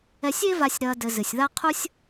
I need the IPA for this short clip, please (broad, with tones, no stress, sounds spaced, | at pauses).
ɛ˨ sʲ e˦ v a˨ sʲ ɾ ɐː˨ d ɘ˨ z ɨ˩ sʲ ð a˥ qʰ u˥ sʲ